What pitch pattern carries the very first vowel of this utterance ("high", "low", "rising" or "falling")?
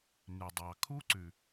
low